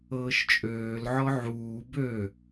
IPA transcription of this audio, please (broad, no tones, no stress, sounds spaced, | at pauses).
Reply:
ɤː ʃ t͡ʃʼ øː l ʕ ɔ ʕ uː b ø